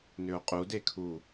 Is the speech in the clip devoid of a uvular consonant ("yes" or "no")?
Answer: no